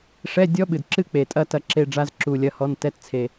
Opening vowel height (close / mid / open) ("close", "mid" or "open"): mid